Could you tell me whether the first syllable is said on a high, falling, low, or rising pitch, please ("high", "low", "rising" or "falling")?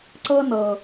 high